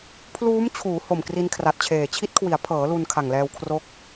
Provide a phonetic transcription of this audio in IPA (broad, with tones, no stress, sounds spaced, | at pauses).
pʰ l uː˦˥ m t͡ɕʰ uː˩˦ h o˨˩ m k r i˧ n kʰ r a˨˩ t̚ t͡ɕʰ eː˨˩ t͡ɕʰ i˦˥ t̚ kʰ w i˩˦ a̯ pʰ ɤː˩˦ l u˧ n kʰ a˨˩ ŋ l ɛː˧ w kʰ r o˦˥ k̚